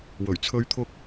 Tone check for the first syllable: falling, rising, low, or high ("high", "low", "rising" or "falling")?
low